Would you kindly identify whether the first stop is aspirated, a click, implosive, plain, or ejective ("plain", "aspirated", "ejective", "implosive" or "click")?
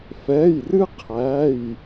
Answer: aspirated